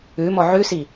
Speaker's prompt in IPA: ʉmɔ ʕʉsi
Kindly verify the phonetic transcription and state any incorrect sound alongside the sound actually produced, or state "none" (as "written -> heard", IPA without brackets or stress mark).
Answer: none